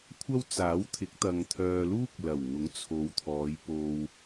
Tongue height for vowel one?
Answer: low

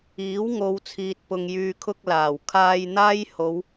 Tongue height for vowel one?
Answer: high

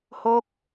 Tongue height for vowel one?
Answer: mid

